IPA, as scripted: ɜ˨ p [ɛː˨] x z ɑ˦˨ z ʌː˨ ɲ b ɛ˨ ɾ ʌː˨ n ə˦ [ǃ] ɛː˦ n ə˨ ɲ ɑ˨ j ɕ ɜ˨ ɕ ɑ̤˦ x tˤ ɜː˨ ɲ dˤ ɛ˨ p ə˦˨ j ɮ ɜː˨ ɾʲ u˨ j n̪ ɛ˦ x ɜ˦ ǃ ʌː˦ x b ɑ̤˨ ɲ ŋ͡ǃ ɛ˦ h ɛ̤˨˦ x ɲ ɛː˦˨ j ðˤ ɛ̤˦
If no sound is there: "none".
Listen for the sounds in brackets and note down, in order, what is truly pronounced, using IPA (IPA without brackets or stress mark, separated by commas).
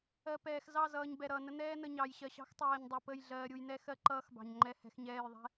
ɛː˨, n̪